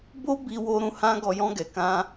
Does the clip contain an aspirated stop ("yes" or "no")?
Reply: no